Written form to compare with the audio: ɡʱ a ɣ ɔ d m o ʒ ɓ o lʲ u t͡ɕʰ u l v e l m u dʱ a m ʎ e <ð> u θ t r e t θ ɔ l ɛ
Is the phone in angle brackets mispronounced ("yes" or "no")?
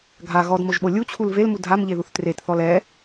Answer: no